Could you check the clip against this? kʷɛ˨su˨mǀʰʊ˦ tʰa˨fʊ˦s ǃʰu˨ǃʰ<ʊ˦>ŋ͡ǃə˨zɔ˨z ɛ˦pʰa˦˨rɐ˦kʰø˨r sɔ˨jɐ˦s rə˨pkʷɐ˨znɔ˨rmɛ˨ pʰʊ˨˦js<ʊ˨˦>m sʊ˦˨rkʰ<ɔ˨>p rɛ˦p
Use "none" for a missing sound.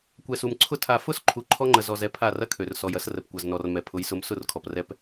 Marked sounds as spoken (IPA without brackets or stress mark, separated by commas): ɔ˦, ʊ˨˦, ɔ˨